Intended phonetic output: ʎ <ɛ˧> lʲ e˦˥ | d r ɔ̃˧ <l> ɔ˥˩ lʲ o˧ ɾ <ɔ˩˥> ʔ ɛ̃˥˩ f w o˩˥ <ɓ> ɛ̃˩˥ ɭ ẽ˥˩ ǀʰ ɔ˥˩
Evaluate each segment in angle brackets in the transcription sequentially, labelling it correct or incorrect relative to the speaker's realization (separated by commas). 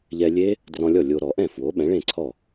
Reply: correct, incorrect, incorrect, correct